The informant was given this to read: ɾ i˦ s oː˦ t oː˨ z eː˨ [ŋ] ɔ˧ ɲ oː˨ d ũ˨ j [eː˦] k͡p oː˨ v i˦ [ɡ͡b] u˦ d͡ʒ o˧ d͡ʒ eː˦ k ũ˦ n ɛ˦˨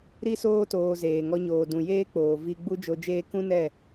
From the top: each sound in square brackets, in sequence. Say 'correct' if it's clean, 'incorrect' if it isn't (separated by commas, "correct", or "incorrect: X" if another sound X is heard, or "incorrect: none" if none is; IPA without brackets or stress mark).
correct, correct, correct